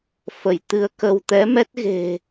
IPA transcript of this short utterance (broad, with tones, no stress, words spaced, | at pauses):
fə˧˩jt̪ɨ˧ə̯kə˧w t̪ɛ˨˦mɛ˦˥t̚ɣe̤˨˩